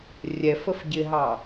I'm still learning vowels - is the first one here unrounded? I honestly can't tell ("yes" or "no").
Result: yes